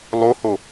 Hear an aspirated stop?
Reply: no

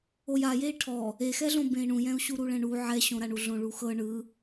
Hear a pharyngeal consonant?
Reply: yes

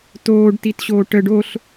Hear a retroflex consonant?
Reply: yes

